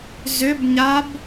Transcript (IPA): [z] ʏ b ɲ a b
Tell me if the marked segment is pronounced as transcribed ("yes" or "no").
yes